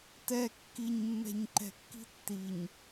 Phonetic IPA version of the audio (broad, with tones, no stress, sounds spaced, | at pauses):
t ɛ˨ kː i˨ ɲ mː ɛ̤˨ ɲ ǃ ɛ̤˨ kː i̤˦ tː i˨ ɲ